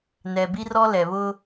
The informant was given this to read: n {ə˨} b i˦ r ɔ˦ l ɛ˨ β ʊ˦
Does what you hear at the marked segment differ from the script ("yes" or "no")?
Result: yes